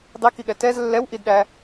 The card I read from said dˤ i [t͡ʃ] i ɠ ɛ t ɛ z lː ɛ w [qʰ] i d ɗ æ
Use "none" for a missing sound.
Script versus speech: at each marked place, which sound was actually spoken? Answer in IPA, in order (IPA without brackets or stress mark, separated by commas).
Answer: k, ʔ